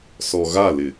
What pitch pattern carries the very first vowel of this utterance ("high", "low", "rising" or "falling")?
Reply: low